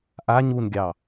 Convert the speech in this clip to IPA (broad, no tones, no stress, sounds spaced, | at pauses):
ʔ a ɲ u n ɡʲ ɑ